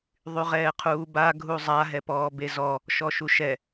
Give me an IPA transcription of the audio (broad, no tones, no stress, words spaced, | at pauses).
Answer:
ðˤyʁɛːqʰuːba ɡʱuzˤa ɦɛpɔːbezɔ | ʃɔʃuʃɛ